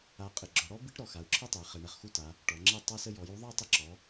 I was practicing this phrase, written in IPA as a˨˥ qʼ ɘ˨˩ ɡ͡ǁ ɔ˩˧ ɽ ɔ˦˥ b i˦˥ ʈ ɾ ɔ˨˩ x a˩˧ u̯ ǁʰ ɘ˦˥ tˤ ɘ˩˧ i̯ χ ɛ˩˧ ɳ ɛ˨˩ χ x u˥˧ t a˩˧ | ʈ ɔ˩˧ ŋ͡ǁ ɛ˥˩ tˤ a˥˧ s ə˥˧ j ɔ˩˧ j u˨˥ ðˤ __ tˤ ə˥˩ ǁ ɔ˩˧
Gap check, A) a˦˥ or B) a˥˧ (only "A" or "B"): B